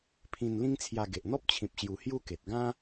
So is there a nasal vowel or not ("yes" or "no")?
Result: yes